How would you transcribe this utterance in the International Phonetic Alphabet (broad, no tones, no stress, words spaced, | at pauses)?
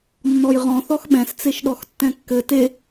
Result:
nːɔjʁɔ̃ θɔxɓɛ̃s t͡seʃɗɔxtːɛ̃kːɘ te